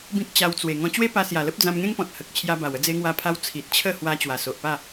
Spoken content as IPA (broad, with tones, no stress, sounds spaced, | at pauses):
b ĩ˦ k̚ t͡ɕ a˧ w t͡s w e˨˩ ŋ ɔ̃˧ t͡ɕ w e˦ p a˧ s j a˨˩ l ə˦ p̚ d͡z ã˧ m ŋ ẽ˦ ŋ p ɔ̃˨ t̚ h ə˨ k̚ t͡ɕʰ j a˧ b a˨˩ w ə˥˧ d͡z e˧ ŋ w a˧ pʰ a˧ w t͡sʰ i˨ t̚ t͡ɕʰ ə˥˧ h w a˧ t͡ɕ w a˨˩ s o˨ ʔ p a˥˧